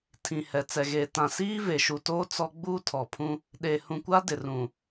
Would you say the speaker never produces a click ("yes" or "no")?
yes